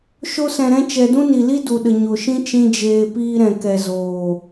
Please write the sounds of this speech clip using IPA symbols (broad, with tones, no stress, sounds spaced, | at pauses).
ʃ o˧ s ɛ̃˨ ɾ ɛ̃˧ t͡ʃ ɛ˨ d ũ˦ n i˨ l i˦ d u˨ ɗ ə˨ ɲ o˨ ʃ ĩ˦ t͡ʃ ĩ˦ d͡ʒ eː˧ p iː˧ ɾ ɛ̃˨ k ɛ˨ z oː˨